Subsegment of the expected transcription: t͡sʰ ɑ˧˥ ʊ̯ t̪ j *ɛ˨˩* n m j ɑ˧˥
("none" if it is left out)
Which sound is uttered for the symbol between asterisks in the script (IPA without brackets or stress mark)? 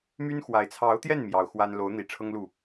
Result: ɛ˥˩